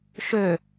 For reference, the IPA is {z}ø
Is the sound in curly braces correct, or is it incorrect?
incorrect